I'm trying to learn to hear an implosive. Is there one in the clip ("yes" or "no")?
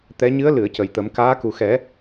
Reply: no